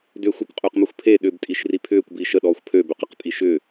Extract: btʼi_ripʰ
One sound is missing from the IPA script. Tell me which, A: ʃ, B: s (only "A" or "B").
A